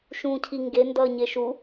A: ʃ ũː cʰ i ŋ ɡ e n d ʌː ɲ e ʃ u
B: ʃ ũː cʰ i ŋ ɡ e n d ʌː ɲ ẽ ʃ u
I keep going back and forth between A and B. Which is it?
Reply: A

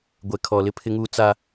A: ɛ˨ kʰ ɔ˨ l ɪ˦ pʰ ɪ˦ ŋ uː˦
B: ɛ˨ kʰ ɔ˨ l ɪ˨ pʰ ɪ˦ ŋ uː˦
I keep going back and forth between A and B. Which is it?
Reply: A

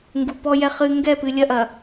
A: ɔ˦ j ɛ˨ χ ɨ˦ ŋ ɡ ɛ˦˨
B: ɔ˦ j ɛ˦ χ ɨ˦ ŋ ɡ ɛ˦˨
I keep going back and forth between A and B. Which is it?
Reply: B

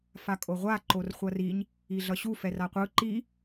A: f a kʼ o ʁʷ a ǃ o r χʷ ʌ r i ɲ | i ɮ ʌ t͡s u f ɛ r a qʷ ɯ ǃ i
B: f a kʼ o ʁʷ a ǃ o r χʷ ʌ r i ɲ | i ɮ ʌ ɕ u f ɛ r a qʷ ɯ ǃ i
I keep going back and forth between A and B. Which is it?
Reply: B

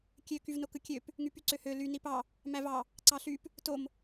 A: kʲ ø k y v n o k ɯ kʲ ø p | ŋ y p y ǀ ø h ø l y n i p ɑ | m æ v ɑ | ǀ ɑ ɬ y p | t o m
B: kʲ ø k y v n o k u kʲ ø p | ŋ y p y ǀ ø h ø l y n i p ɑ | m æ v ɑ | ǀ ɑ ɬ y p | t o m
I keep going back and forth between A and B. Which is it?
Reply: A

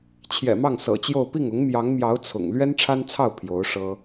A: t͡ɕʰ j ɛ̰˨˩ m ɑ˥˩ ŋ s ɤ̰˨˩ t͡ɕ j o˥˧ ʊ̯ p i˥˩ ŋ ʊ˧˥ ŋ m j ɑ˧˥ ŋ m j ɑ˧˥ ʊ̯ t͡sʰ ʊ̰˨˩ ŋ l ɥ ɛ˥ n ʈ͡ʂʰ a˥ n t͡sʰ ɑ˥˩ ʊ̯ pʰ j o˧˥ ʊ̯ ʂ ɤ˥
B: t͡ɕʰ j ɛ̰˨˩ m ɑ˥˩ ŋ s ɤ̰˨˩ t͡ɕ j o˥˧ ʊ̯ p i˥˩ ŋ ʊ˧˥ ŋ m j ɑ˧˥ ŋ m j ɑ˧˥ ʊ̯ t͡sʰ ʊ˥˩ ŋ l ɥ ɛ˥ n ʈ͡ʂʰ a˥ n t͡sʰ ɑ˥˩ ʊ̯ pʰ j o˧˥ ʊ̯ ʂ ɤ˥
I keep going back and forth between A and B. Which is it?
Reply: A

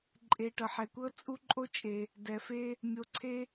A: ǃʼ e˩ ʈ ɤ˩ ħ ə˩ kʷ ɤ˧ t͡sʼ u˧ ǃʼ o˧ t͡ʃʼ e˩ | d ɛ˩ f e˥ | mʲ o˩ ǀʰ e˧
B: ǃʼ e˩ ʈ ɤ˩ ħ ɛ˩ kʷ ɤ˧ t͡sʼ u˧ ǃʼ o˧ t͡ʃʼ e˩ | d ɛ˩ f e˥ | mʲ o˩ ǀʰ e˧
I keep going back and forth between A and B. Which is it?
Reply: B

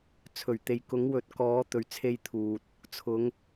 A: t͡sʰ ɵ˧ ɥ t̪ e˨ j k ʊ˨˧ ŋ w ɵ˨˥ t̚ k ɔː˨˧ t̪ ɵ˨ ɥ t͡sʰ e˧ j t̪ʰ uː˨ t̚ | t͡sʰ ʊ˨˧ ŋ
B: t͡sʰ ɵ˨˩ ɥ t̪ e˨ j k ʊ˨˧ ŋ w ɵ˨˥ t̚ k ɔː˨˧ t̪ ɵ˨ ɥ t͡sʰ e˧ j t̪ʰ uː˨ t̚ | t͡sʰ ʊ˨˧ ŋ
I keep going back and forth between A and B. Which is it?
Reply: B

